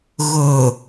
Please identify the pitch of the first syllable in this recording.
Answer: low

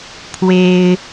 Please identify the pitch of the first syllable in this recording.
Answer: high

